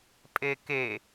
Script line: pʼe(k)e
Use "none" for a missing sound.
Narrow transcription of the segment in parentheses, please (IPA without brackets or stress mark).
k